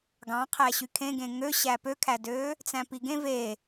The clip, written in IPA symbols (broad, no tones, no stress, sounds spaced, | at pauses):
ɡ ɑ̃ qʰ æ ɕ y kʰ ẽ ɡ ẽ ŋ ø ɕ æ p ø kʰ æ d øː | t͡s æ̃ p i ɡ ẽ v e